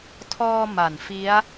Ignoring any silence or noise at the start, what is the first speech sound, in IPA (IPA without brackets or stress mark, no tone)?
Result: tʰ